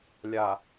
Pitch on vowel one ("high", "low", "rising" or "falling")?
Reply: low